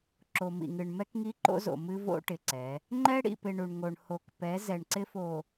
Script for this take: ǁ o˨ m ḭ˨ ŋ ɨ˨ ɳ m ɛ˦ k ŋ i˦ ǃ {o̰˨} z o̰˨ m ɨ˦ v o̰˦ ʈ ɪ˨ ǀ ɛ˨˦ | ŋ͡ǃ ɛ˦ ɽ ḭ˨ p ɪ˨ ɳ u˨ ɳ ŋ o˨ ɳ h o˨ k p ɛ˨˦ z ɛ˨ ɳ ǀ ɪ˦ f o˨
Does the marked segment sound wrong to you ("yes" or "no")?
yes